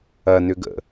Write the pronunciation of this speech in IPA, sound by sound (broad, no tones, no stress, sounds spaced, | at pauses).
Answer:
ɐ n ʏ ɡ ə̰